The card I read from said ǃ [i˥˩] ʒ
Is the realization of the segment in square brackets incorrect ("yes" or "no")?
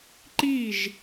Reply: no